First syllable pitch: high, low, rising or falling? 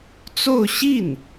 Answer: falling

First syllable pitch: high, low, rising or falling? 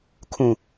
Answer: low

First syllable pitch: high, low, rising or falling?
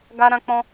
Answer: high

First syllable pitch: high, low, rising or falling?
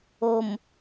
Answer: low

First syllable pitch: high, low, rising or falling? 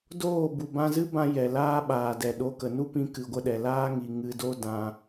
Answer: falling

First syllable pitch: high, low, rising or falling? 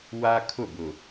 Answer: high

